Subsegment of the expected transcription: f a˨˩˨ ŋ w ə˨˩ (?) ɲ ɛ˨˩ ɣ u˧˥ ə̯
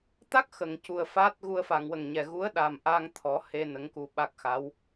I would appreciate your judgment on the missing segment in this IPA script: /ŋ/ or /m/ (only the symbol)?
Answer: ŋ